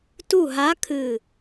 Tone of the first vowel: falling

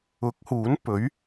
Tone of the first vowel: rising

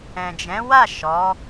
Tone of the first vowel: low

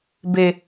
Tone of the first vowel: high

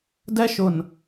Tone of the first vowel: high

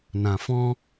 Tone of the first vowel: low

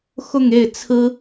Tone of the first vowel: falling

